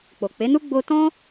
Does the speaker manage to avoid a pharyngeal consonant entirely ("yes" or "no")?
yes